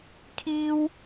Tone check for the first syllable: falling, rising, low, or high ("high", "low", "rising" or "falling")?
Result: high